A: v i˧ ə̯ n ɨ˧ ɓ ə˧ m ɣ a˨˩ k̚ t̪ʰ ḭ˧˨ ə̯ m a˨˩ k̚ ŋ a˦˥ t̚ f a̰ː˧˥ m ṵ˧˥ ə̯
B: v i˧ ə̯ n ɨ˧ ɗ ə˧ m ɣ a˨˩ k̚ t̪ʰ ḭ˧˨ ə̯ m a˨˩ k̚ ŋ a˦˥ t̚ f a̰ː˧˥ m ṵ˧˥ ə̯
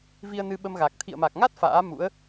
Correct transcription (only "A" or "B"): A